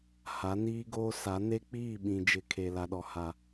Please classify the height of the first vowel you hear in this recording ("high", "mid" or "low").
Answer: low